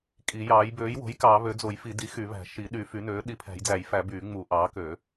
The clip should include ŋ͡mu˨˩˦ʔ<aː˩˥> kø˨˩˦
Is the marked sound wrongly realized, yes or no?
yes